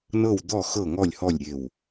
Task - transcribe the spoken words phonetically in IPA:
n ɤ˥˩ w d̪ ɔ˥˩ x ɤ˥˩ ŋ ɔ˥˩ lʲ h ɔ˥˩ lʲ ɾʲ e˧˩ w

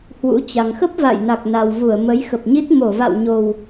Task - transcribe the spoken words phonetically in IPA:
h w ṵ˧˥ t͡ɕ a˨˩ ŋ x ə˦˥ p̚ v a̰˧˨ j n a˨˩ k̚ n a˨˩ w v u˧˩ ə̯ m ə˨˦ j x ə˨˩ p̚ ɲ i˦˥ t̚ m o˧˩ v a̰˧˨ w ɲ o˨˩ w

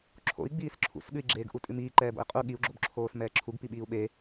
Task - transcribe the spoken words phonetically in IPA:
ǁʰ o̰ i̯ ɡ͡b iː s ǁʰ ṵ s ɠ ʉ i̯ ɡ͡ǁ eː ɡ ʔ u tʼ ʉ m iː ǃ ɛː b o̰ i̯ qʼ u ɠ i u̯ ɡ͡ǁ o b ǁʰ oː s m ɛː ǁʰ u ɡ p i ɓ iː u̯ ɓ e

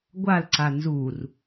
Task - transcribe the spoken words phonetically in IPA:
ɡʷ a l ǀ a n z u r

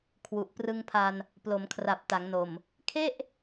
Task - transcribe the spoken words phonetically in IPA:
kʰ w u˨˩ ʔ p r ɯ˧ ŋ pʰ a˧ n | p l o˩˦ m kʰ r a˨˩ p̚ t a˩˦ ŋ n o˨˩ m | kʰ e˥˩ ʔ

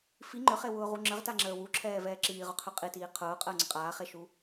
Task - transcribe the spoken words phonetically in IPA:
f i ŋ͡ǃ ʏ χ e w ʊː ʁ u ŋ͡ǁ ə ʁ t a ŋ͡ǁ əː w u ǁʰ ɛː v ɛː ǁ iː ʁ ʊ qʰ ø qʼ i t iː qʰ ʊː qʼ əː ŋ͡ǀ ə qʼ aː χ e ʃ u

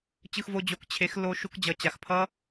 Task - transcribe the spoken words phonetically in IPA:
t͡ɕ ɯ˧ x v o˧ d͡ʑ o˨ k t͡ɕʰ e˨˦ x l o˧ ʃ u˧ k d͡ʑ ʌ˨ t͡ɕ a˨ x pʰ ʌ˦

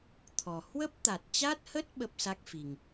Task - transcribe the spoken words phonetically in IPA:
t̪ʰ ɔ˨˩ h w ə˦˥ p̚ t̪ a˨˩ t̚ t͡ɕ a˦˥ t̚ h ə˦˥ t̚ ɓ ə˦˥ p̚ s a˦˥ k̚ f i˨˩ ŋ

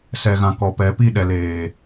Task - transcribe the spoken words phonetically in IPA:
s ɛ˨ ɣ ã˨ k ɔ˨ p ɛ˨˦ p i˦˨ ɗ ɛ˨ l eː˨

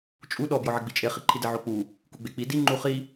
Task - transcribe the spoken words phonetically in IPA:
t͡ʃʼ u ɗ ɔ b j ɔ ʕ ɪ ɡ͡b i t͡ʃʼ e χ i ǃʰ i d ɪ ʕ o k͡p u | k u ɡ͡b e k͡p i d i ŋ͡ǃ u χ i

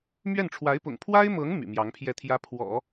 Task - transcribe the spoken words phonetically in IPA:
m ɥ ɛ˥˩ n ʈ͡ʂʰ w a˧˥ ɪ̯ p ʊ̰˨˩ ŋ pʰ w a˥ ɪ̯ m ɤ˧˥ ŋ m y̰˨˩ m j ɑ˧˥ ŋ pʰ j ɛ˥˩ t̪ʰ j ä˥ pʰ w ɔ̰˨˩˦

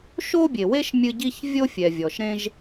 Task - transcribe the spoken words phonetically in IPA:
ʃ o˥ bʲ e˩ w e˥ ʃ mʲ ɨ˥ ɟ i˥ ç vʲ o˥ fʲ ɛ˩ vʲ ɔ˩ ʃ ɾ ẽ˥ ʒ

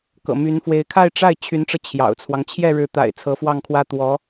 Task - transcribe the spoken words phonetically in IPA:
k ɤ̰˨˩ m y˧˥ n f w e˧˥ ɪ̯ kʰ a˥˧ ɪ̯ ʈ͡ʂ a˥˩ ɪ̯ t͡ɕʰ y˧˥ n ʈ͡ʂ ɤ˧ t͡ɕʰ j ɑ̰˨˩ ʊ̯ t͡sʰ w ɑ˦ ŋ t͡ɕʰ j ɛ˥˩ ɻ ɻ̩˧˥ t̪ a̰˨˩ ɪ̯ t͡sʰ ɤ˧˥ f w ɑ˥˩ ŋ kʰ w ä˥ t̪ w ɔ˧˥

